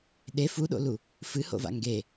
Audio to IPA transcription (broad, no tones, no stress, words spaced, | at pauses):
ɗe fuɗo̰lu | fɨho̰va̰ ŋɡe